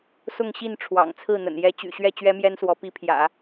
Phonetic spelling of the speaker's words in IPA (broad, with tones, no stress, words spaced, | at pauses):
sʊ˥˧ŋɕi˥˩n ʈ͡ʂʰwɑ̰˨˩ŋt͡sʰɹ̩˥˩n̪ə̰˨˩n jɛ˧˥t͡ɕy̰˨˩ɕɥɛ˥˩ t͡ɕɥɛ˥mjɛ˥nswɔ˧˥ pi˧˥pʰjä̰˨˩˦